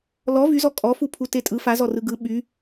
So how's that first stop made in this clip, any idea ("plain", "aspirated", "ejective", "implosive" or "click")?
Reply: ejective